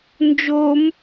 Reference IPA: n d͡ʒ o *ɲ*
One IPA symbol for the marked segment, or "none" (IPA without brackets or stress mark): m